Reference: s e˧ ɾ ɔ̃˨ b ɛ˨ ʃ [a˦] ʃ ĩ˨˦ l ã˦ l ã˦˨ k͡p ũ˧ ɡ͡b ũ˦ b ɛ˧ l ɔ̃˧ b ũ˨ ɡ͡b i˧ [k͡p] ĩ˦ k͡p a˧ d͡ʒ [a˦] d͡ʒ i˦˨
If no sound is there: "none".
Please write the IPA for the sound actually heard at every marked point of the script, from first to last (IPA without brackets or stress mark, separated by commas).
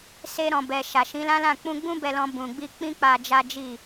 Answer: a˨, k͡p, a˦